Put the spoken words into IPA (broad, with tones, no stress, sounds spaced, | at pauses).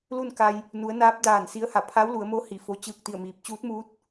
l u˥˨ n k a˧ j | n u˩˧ ə̯ n aː˧˥ p̚ d aː˧˩ n s i˧˥ ə̯ h a˧˩ pʰ a˧˥ w l u˩˧ ə̯ m oː˧˥ h i˧˩ f o˧˥ t͡ɕ ɯː˥˨ k̚ t̪ i˥˨ ə̯ m iː˧ p̚ t͡ɕ uː˧˥ t̚ m uː˧˥ t̚